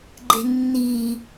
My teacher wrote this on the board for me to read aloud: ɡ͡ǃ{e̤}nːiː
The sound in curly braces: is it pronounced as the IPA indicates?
yes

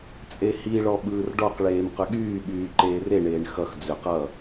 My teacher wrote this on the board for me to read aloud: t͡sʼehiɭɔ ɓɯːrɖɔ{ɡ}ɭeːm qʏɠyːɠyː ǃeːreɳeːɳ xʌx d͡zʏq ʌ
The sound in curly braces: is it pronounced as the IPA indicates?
no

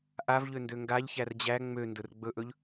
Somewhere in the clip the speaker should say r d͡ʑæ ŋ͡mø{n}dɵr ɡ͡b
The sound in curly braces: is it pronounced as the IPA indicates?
yes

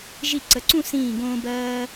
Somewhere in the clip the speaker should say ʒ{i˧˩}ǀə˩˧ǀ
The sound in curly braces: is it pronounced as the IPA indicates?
yes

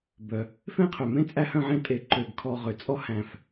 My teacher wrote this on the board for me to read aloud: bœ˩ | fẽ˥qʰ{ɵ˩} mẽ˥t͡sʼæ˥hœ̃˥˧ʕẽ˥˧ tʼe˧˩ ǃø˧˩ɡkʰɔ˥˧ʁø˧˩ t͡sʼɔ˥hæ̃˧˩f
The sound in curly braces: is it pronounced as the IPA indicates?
no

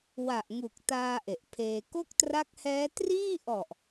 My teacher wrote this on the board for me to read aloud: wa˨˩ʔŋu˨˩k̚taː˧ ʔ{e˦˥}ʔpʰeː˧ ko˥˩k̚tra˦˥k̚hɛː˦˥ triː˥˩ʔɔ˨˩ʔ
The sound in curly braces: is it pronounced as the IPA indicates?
no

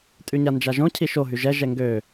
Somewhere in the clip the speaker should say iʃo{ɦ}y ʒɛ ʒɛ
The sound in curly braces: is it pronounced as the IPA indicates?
yes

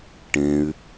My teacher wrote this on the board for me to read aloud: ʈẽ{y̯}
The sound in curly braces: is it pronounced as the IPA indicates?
yes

